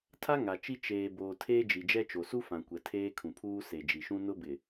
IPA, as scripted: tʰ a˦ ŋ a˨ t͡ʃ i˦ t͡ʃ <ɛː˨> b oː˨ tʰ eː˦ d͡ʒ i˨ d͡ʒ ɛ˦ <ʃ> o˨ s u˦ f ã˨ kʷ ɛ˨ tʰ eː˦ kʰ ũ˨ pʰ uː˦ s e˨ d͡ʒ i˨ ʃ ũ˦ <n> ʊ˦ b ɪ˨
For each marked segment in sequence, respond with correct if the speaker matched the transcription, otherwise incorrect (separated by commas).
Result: incorrect, incorrect, correct